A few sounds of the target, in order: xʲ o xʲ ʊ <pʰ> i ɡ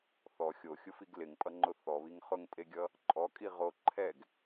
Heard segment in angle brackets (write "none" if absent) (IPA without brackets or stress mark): f